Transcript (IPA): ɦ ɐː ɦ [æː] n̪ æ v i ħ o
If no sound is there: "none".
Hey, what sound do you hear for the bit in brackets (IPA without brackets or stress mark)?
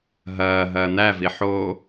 ɐː